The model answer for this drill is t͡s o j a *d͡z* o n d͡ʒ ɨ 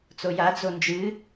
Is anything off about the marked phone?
no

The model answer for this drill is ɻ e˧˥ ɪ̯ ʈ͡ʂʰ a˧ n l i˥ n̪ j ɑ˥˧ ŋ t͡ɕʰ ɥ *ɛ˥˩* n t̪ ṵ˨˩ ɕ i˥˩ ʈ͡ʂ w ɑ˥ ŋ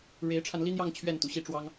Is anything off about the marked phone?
no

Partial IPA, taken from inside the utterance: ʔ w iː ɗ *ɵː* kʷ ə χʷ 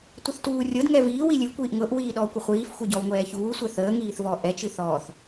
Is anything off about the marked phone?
yes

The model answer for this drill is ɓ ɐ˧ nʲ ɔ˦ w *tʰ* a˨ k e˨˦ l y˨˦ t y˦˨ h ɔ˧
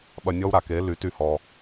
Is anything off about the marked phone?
yes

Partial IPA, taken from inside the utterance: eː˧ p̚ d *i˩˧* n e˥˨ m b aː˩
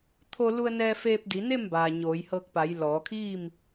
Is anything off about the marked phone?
no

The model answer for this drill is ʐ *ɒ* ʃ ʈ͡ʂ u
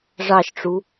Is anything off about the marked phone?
yes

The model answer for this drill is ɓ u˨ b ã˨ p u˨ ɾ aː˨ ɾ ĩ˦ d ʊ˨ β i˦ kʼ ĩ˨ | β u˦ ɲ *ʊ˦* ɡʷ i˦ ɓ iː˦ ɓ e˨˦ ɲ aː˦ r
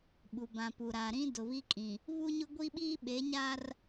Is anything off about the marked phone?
no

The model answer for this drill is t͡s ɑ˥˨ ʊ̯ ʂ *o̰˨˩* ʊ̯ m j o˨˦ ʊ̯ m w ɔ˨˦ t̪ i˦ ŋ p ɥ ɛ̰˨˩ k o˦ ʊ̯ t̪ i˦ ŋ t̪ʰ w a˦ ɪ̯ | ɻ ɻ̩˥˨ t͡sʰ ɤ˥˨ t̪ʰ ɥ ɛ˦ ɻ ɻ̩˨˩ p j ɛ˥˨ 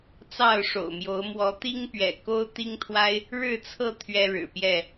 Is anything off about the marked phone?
no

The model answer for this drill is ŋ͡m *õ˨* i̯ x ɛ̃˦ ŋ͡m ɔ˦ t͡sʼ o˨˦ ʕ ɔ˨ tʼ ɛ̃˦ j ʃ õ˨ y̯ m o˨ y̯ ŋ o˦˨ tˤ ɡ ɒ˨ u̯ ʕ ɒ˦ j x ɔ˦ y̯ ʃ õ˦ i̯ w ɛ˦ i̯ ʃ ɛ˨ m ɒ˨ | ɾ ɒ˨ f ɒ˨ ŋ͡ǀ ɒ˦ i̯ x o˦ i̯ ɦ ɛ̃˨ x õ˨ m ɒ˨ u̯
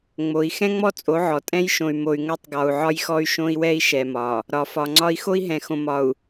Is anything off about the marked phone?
yes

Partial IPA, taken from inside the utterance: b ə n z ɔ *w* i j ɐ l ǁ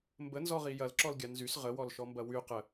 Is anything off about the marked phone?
yes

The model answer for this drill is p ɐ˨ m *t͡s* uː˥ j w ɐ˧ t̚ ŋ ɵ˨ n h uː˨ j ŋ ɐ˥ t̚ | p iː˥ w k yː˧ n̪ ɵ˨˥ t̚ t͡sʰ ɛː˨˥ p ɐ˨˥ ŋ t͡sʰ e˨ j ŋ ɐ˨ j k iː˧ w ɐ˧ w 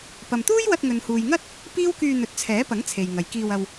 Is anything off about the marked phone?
yes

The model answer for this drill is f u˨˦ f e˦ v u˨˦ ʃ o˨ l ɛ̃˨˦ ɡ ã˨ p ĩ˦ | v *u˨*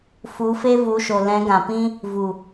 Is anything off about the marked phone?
no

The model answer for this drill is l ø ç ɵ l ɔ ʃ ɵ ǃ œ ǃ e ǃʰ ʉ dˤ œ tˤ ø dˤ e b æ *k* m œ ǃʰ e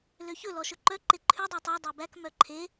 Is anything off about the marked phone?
no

